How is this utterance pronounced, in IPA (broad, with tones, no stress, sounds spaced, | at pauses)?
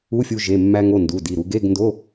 u˧˥˧ fʲ u˧ ʒ e˩˧˩ mː æ˧ ŋ o˩˧˩ n d u˩˧˩ d i˩˧˩ ɾ u˧ ɡ e˧˥˧ ɡ n d o˧˥˧